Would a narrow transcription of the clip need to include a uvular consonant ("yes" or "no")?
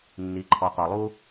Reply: yes